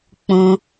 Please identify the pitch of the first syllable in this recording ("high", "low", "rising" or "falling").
high